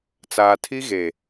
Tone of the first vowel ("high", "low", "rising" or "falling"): low